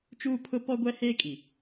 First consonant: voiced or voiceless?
voiceless